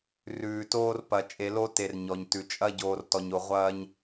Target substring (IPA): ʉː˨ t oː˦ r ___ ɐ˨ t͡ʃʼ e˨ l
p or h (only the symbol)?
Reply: p